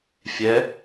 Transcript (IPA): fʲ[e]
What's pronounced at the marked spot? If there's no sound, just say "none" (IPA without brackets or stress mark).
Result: ɛ